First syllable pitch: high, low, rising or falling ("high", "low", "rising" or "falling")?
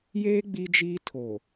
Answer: high